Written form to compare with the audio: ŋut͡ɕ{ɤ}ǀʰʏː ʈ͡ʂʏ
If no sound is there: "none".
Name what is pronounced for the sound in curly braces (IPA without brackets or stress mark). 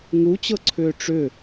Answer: ɤ